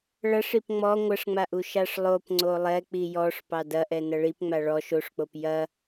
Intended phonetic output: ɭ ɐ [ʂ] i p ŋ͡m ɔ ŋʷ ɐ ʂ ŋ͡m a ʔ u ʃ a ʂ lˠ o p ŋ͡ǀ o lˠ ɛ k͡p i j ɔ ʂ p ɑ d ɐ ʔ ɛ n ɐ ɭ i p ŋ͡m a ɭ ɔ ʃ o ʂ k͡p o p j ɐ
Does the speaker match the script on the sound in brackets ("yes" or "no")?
yes